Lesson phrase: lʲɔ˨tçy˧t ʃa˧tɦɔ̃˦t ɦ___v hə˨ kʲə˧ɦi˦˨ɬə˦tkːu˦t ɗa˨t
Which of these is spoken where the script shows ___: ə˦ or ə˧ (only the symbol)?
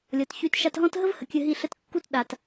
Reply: ə˦